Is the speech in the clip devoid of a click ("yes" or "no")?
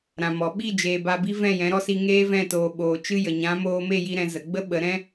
yes